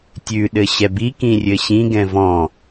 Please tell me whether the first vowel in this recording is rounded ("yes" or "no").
yes